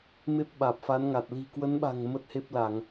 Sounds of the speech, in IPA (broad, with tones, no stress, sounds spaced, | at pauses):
m e˦˥ p̚ ɓ aː˨˩ p̚ f a˨˦ n ŋ a˨˩ t̚ l i̤˨˩ k w ə˨˦ n ɓ a̤˨˩ ŋ m ə˦˥ t̚ h e˦˥ p̚ l a˧˩˨ ŋ